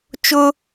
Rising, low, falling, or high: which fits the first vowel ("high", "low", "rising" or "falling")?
high